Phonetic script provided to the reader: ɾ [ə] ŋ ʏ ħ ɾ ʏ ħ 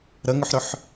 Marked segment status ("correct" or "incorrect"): correct